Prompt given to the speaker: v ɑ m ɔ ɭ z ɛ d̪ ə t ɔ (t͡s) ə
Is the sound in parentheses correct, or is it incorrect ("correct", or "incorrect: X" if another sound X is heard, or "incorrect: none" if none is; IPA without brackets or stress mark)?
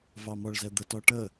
incorrect: ʈ